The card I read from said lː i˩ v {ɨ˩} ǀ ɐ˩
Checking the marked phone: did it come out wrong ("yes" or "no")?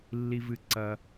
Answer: no